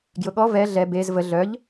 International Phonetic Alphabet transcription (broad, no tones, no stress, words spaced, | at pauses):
ɡjʊɠɔ vɛ ɮɛ bez və ɮœʎ